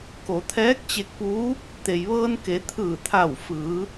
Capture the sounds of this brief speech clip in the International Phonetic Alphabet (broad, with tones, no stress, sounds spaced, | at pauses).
k o˩˧ t̪ʰ ɛː˧˥ k̚ t͡ɕ e˧ k̚ p uː˧˥ | t̪ e˩ j ʋ ɤː˧ n k e˩˧ t̪ʰ ɯː˧˩ t̪ʰ a˧˩ w f ɯː˩˧